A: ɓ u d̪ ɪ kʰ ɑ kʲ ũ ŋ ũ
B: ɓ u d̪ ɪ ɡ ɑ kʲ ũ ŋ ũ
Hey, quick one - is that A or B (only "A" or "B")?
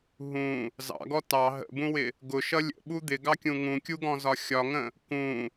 B